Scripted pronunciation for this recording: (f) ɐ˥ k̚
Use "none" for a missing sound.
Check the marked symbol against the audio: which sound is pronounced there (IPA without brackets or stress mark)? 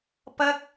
p